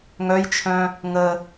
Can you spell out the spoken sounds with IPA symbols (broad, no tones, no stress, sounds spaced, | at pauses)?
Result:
ŋ œ j t͡ʃʰ œ̃ | ŋ ə